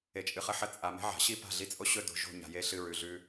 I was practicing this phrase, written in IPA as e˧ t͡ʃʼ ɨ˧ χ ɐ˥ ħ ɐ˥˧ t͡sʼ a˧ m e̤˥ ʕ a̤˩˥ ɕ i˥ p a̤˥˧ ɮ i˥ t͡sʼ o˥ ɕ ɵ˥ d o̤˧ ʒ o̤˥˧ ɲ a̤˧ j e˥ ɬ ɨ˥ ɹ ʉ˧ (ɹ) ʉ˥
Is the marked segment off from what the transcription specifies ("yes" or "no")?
yes